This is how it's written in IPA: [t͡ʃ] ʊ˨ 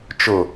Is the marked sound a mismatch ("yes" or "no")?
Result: no